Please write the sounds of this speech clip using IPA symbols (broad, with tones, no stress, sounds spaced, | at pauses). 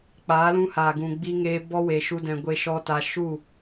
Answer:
k͡p aː˨˦ l ũ˧ h aː˨ ɡ ũ˨ ɡ͡b iː˦ ŋ eː˦ b ɔ˦ w e˧ ʃ u˦ d ɛ̃˧ ɡʷ e˧ ʃ ɔ˧ t a˧ ʃ u˦˨